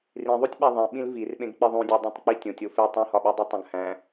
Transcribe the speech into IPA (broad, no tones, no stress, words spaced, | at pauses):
rĩðˤutʲɓæ ðˤẽ ɓĩlvirɓẽɡk͡pi ðˤũdʲedˤõtˤk͡pi tʲõtʲ ofe tˤũhɒɓudˤi tˤõɡhæ̃